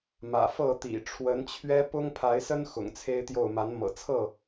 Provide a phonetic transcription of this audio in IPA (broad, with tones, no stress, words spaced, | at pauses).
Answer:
mä̰˨˩fɤ˥˨t̪ḭ˨˩ ʈ͡ʂʰwə˨˦nt͡ɕʰɥɛ˦ pʊ˦ŋ pʰa˨˦ɪ̯sə˦n xʊ̰˨˩ŋt͡sʰe˦ɪ̯t̪jo˥˨ʊ̯ ma˨˦nmɤ̰˨˩t͡sʰɤ˥˨